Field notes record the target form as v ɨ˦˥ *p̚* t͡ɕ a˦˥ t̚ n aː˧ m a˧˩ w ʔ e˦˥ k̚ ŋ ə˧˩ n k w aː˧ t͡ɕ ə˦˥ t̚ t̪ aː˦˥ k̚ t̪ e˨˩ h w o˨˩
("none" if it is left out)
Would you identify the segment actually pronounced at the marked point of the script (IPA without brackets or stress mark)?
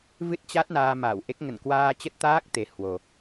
t̚